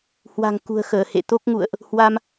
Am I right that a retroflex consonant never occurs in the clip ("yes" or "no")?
yes